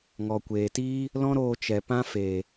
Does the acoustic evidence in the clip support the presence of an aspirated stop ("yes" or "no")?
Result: no